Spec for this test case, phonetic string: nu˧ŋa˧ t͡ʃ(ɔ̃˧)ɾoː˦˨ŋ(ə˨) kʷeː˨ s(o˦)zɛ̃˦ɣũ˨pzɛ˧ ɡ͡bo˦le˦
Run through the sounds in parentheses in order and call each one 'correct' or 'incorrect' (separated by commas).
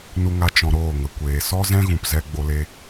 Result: correct, correct, incorrect